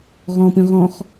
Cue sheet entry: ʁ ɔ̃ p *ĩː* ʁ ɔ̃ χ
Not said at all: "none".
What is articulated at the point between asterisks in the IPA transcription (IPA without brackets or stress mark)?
ĩ